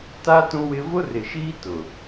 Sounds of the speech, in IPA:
t a˦ t ũ˦ w ɪ˦ v ʊ˦ r ɪ˨ ʃ iː˦ t ʊ˨

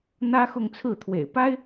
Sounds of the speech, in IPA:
n̪ ä˥ x ʊ˥˧ ŋ t͡sʰ ɹ̩˥˩ t̪ʰ w ḛ˨˩ ɪ̯ p a˥ ɪ̯

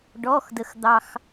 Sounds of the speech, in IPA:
ɖ ɔ˩˧˩ x d ə˩ x d̪ ɑ˩ x

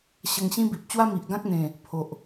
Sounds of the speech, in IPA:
ɕ ə˧ ŋ ɕ ĩ˦ b i˨ p̚ t͡ɕ w a˦ m i˨ ʔ ɡ ã˦ k̚ n̪ ẽ˨˩ | pʰ o˨ ʔ

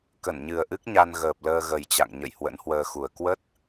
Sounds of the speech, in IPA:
k ə˧˩ n ɲ ɨ˨˩ ə̯ ʔ ɨ˦˥ k̚ ɲ a˧ n ɣ əː˨˩ p̚ l əː˧ ɣ ə˨˩ j t͡ɕ a̰˧˨ ŋ ɲ ə̰˧˨ j h w ə̰˧˥ n h w əː˧ x u˨˩ ə̯ k w ə˦˥ t̚

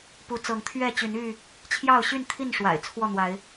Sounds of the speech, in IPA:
p u˨˦ t͡s ɤ˨˦ ŋ t̪ʰ ɥ ɛ˥˨ t͡ɕ y˨˦ n y˥˨ | t͡ɕʰ j ɑ˥˨ ʊ̯ ɕ y˥˨ n t̪ʰ i˥˨ n ʂ w a̰˨˩ ɪ̯ t͡sʰ w ɔ˥˨ n̪ w a˨˦ ɪ̯

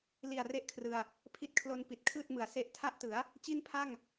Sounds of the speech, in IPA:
l i˨˩ a̯ r e˥˩ ʔ kʰ r ɯ˧ a̯ | pʰ i˦˥ t̚ kʰ l o˧ n p i˨˩ t̚ kʰ ɯː˥˩ t̚ m ɯ˩˦ a̯ s e˦˥ ʔ tʰ a˥˩ ʔ t ɯ˩˦ a̯ | t͡ɕ i˥˩ n pʰ a˥˩ ŋ

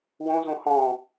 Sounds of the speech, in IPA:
w õ z õ h ɔ̃

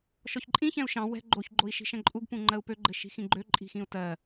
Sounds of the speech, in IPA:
ʃ ɔ ç ǃʼ ĩ ç ɛ̃ u̯ ʃ ɑ̃ w ɛ̤ ɡ͡ǃ o ç ɡ͡ǃ o i̯ ʃ i̤ ʃ ɛ̃ ǃʼ u ɡ p ũ ŋ͡ǃ ɜ u̯ p ø ɡ͡ǃ ɘ ʃ i̤ x ĩ ɡ͡ǃ ø ǃʼ i̤ x ĩ u̯ t ɜ

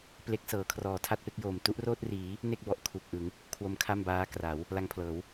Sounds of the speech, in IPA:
p l e˦˥ k̚ s ɤː˩˦ kʰ r ɔː˩˦ tʰ a˥˩ t̚ p e˦˥ k̚ j oː˨˩ m t u˦˥ ʔ r oː˥˩ t̚ r iː˩˦ | n e˥˩ k̚ b ɔ˨˩ ʔ kʰ u˨˩ k̚ ʔ ɯ˩˦ ŋ | kʰ w o˦˥ m kʰ a˥˩ m b aː˦˥ k r a˩˦ w | l a˧ ŋ pʰ l ɤː˩˦ w

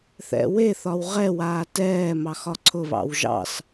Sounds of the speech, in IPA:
θ ɛ̰ w e θ ɒ w ʁ ɛ w aː t ɛː m ɑ x ɒ ǀʰ ʊ β ɑ̰ w ʒ ɑ̰ s

